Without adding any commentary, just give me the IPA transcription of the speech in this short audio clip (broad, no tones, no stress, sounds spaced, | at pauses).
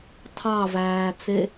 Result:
tʰ ɑ v æː t͡s e